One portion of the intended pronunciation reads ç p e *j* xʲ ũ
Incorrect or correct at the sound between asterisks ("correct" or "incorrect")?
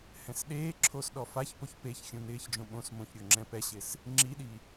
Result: incorrect